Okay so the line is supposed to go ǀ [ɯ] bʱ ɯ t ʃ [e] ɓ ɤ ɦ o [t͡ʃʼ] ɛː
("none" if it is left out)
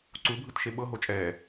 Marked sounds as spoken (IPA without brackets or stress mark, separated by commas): u, e, t͡ʃʼ